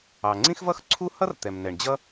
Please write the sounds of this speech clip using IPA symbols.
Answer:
ɑ˩ ŋ͡ǀ ĩ˥ x v ʌ˥ x ǀʰ u˥ h ʌ˥ r t̪ ɛ˩ m n ɛ˩ ɳ d͡ʑ ʌ˥

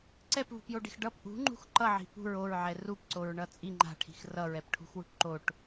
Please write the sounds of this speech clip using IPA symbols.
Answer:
ǀ ɛ p v ṳ p j o ɖ i̤ x ɖ ʌ p ʔ ṳ ŋ͡ǃ ṳ x ǃ ʌ ʕ i̤ p ṳ ɹ o ɹ ʕ ɛ r u p ǀ o ɹ ɳ ʌ t͡sʼ i ŋ͡ǃ a̤ ʈʰ i̤ x r ʌ ɹ ɛ p ʈʰ ṳ x w ṳ ʈ ǃ o ʈ

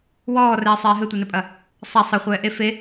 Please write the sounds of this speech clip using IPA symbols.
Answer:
w ɔː r ɛː sˤ eː ɦ ɘ tʷ ɛ n ɘ pʼ ɐ | sˤ a sˤ ɘ χʷ ɛː ʔ e f e

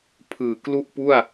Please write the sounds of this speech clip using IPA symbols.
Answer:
pʰ ɯː˨˩ k l u˥˩ ʔ p u˥˩ a̯

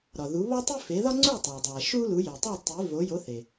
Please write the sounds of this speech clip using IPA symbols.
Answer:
ɾ ɒ˩ ð u˩˥ β ɒ˥ tˤ i˥ f e˩˥ ð ɒ˥ ŋ͡ǀ u˥˩ tˤ æ˩ dˤ æ˩ ʃ u˥ l u˩˥ j e˩ tˤ u˥˩ tˤ i˩˥ v o˩˥ j o˩˥ θ e˩

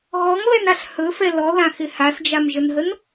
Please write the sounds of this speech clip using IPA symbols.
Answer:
ɣ ɔ ŋ β ɛ n a ɬ h ɵ f ɛ l ɔ ð ã x ɪ h a s d͡ʒ a m ʒ ə n ɦ ə n

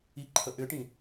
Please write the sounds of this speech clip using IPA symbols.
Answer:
i ǃʰ ə ʔ ʏ ʈ ĩ

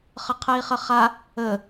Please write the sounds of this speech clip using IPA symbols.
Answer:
χ ə qʰ ɛ i̯ χ ə χ a | ə

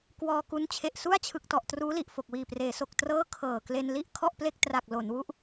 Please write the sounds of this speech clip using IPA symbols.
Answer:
k w ɔː˧ k u˦˥ n t͡ɕʰ e˨˩ ʔ s u˥˩ a̯ t͡ɕʰ ɯ˨˩ k̚ t ɔ˨˩ ʔ t r uː˦˥ l i˨˩ ʔ f o˨˩ k̚ w iː˨˩ p r eː˩˦ s o˨˩ k̚ t r ɤː˥˩ kʰ ɤː˨˩ k l e˧ n l i˥˩ ʔ kʰ ɔ˥˩ ʔ p l e˥˩ k̚ t r a˨˩ k̚ l o˩˦ n w u˦˥ ʔ

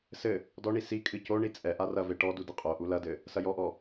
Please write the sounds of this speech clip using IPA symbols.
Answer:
s ɘ | d ɔ ɳ i s i kʼ ɨ c o ɳ i t͡sʼ ɛ ʔ a r ɐ v e ʈ ɔ d u d ɨ qʼ o ʔ u l ɐ d ɘ | s ɐ j ɔ ʔ ɔ

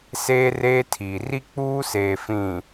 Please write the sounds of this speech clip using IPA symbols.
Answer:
s eː˦ r eː˦ tʰ iː˨ r i˦ k͡p uː˦ s eː˨ f ĩ˨

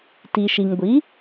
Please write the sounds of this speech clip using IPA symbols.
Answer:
t i˩ ʃ i˩ ŋ ɡʷ i˩˥

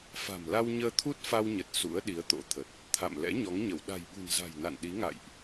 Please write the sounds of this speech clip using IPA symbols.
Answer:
f a̤˨˩ m l a˧ w ɲ əː˧ t̪ʰ u˦˥ t̚ f a˧ w ɲ ə˨˩ t̚ s ṵ˧˥ ə̯ ɗ i˨˦ ə̯ t̪ o̰˧˥ t̪ʰ ə˨˩ t̚ | t̪ʰ a̰˧˨ m l ɛ̰˧˥ ɲ ɔ˨˦ ŋ ɲ ə˧˩ w ɗ a̤˨˩ j ɓ ṳ˨˩ n z a̤˨˩ j n a̰˧˨ n ɗ i˨˦ ŋ a̰˧˨ j ʔ

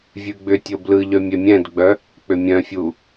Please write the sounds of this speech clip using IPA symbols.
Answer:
vʲ ʉ ɡ͡b ʏ tʲ o b l ɯ ʎ œ mʲ ɛ mʲ ɛ̃ d ɡ͡b œ | k͡p ʏ mʲ œ̃ fʲ u

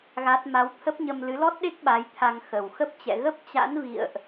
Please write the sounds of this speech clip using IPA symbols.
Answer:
ɣ a˦˥ t̚ m a˨˦ w t̪ʰ ə˦˥ p̚ ɲ ə˧ m l ɨ˨˦ l ɔ˦˥ t̚ ɗ e˦˥ k̚ ɓ a˨˦ j t̪ʰ a˧ ŋ x ə˨˩ w x ə˦˥ p̚ t͡ɕ ɛ̰˧˨ ɣ ə˦˥ p̚ t͡ɕ a̰˧˥ n v ḭ˧˨ ə̯ ʔ

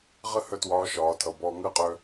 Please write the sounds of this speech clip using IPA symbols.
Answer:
ʁ ə˥ h œ˥ t w ɒː˧˥ ʃ ɒː˩˧ tʰ ʌ˩ b ɔː˧ ŋ əː˥ qʼ œ˧

